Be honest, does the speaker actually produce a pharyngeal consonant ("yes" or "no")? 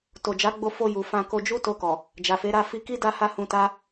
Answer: no